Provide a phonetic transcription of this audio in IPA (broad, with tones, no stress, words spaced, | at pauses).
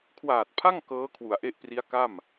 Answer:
kʰwaː˨˩t̚pʰa˥˩ŋ kɤː˦˥kʰwu˩˦a̯ʔe˦˥ʔpri˦˥a̯ ka˥˩m